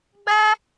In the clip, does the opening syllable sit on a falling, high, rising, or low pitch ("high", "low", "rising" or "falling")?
high